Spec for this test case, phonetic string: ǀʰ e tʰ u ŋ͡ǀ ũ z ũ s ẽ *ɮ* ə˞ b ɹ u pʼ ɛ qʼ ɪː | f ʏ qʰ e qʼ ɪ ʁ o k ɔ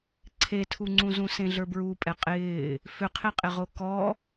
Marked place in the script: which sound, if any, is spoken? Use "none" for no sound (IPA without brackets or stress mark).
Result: ɮ